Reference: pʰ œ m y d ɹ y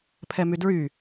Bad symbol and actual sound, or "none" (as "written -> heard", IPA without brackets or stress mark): œ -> ɛ